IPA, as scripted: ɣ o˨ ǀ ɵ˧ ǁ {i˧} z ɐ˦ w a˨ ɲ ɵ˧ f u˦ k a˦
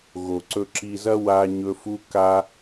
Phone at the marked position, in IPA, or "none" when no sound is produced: i˧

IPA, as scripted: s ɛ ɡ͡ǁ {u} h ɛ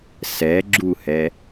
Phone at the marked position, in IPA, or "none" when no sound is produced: u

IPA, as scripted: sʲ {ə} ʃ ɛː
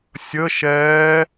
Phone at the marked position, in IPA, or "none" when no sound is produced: ə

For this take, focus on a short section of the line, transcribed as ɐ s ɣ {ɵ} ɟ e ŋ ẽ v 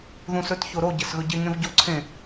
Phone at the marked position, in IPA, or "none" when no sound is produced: ɵ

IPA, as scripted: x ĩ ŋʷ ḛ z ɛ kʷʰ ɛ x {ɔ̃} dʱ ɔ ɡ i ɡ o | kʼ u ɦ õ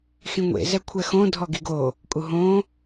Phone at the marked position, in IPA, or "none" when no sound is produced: õ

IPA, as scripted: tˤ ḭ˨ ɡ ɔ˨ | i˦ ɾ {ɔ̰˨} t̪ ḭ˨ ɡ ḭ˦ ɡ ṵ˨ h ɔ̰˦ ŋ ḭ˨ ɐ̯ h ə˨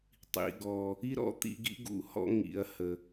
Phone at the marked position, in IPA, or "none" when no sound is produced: ɔ̰˦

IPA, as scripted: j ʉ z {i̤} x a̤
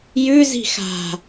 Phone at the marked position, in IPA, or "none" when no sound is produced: i̤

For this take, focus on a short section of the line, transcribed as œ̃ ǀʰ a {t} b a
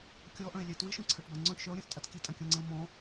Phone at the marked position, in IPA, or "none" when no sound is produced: ʈ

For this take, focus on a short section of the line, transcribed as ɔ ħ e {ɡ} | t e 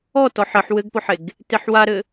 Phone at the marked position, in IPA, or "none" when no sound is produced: ɡ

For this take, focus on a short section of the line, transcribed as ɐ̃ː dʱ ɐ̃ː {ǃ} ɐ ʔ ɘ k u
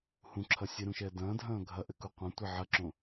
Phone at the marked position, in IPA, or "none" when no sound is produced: ɡʱ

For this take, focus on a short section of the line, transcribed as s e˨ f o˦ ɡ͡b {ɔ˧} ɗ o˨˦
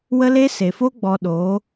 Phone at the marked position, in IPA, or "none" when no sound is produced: ɔ˧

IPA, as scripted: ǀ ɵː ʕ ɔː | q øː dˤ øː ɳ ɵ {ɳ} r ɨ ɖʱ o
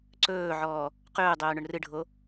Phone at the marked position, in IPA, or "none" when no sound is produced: ɳ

